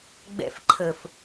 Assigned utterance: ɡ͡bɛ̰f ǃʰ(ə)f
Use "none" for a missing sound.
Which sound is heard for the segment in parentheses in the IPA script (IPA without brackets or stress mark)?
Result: ə